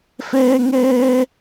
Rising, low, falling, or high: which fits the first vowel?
high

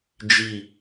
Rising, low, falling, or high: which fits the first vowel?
falling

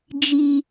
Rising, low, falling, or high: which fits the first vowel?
high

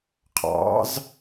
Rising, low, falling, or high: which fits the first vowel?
rising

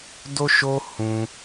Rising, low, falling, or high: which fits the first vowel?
high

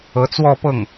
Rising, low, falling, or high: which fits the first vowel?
rising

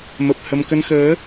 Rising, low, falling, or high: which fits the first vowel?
low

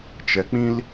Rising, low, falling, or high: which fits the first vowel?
high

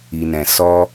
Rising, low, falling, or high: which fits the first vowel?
low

